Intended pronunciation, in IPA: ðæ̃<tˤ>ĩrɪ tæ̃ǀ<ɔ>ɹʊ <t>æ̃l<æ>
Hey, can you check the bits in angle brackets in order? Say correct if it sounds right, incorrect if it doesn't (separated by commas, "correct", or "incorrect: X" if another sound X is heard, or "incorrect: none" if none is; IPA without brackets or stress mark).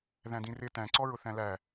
incorrect: d, correct, incorrect: θ, correct